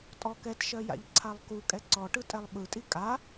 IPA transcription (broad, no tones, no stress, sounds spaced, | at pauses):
tʼ ɔ k ɛ t ʃ ɜ j a̰ ʎ ǀʰ a lˠ k u kʼ ɛ ǀ ɔ ʈ ɯ tʼ ɛ lˠ ɓ ɯ tʼ i kʼ a